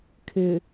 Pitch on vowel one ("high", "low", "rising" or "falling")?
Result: low